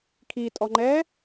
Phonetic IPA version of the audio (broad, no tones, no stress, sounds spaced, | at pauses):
kʰ i tʼ ɔ ŋ͡ǃ ɛː